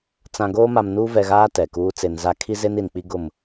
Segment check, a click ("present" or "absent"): absent